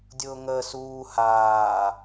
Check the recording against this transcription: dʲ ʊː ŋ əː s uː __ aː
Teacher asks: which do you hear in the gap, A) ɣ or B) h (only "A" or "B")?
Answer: B